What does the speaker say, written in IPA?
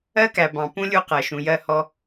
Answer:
ɜ˦kæ˨ bɑ̃˨pũ˦ lʲu˦qɜ˨ʃũ˨ jɜ˦˨hɔ˦

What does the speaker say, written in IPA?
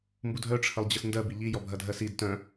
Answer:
mbudʱœ ʈ͡ʂʰəlˠd͡ʑəsndɜ biʎi jɔbʱɐdʱɜsid tœ̃

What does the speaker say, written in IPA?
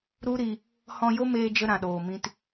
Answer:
ɾu˦ɾi˧ | hɔ̃˧jo˦meː˧ d͡ʒə˦ɾã˨ɗoː˨mĩ˧t

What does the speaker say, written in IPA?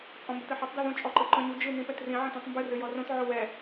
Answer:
t͡sʼɔ̃mbɘtɘħotˤ dɛðõ t͡ʃʼɔǃɨǃɔ̃ɲu d͡ʒɨ nĩpɛtrĩ ʕɛ̃tõtˤmbɨ rɨjɔrõt ʕowɛ

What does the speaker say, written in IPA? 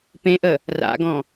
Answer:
pẽʔə | ra̰ɡɔ̃

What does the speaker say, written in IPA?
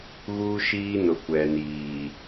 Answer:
ɣuː˦ʃiː˦nʊ˨ kʷɛ˨niː˨

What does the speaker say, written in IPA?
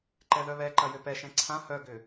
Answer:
ǃɛðœβɛǃɐ jøpɛʃɛ̃ ǀʰã hœɡʏ

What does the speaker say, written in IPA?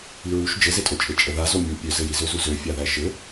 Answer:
iɹuʃ d͡ʒɘzetʼot͡ʃʼe t͡ʃʼəða zomʲu pʲøzɘji zøzuzø fʲaðæʃɘ

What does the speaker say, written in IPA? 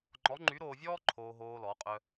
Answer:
ŋ͡ǃɔ˧˥ŋ͡ǃy˧˥ɾoː˧vʲɔː˥ ǃʰoː˧ɦoː˧ lɔ˩˧qʼœ˧

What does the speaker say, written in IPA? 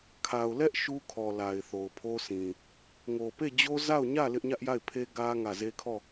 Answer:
kʰa˨ʊ̯ lɛ˦ʔ ʃu˦kʰɔ˨ la˨ɪ̯θo˨ʊ̯pʰo˦sĩ˨ | ŋo˨pe˦˨d͡ʑo˦ za˦˨ʊ̯ɲä˦˨ lɪ˦ʔɲä˦ʔja˦˨ɪ̯pʰe˦ ɡä˦ ŋä˦˨ ze˦kʰɔ˦˨

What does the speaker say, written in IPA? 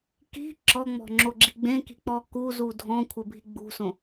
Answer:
ki̤ ǁɔŋ͡mɔ̤ŋ͡ǁoɡ͡ǁi̤ ɡ͡bẽki̤k͡pɔ kuzu dʱɔ̃kʷʰɘbʱi ɡ͡bṳsõ

